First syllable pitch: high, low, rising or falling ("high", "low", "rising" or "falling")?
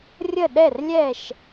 falling